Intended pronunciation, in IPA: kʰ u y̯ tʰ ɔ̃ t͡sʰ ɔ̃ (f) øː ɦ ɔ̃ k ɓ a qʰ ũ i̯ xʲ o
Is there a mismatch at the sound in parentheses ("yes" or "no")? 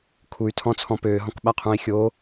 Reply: yes